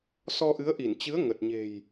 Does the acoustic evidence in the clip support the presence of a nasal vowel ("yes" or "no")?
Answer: no